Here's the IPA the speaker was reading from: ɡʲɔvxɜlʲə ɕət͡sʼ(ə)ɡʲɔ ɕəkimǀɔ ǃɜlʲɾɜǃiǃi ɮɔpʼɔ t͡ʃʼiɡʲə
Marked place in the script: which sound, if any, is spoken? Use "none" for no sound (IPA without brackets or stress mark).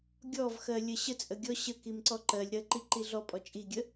ə